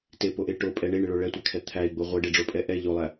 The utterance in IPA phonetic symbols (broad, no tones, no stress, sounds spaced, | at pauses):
t e p o ʔ e ʈ o pʼ ɛ ɳ e ɳ ɪ ɭ o ɭ ɛ tʷ æ kʰ ɛ t̪ʰ æ i̯ ɡ͡b o ʁʷ ɛ ɖ e ɖ͡ʐ o pʼ ɛ ʔ ɛ ʎ o lˠ æ